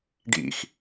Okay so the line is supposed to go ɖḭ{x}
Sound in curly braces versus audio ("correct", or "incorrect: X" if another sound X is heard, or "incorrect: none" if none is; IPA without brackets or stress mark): correct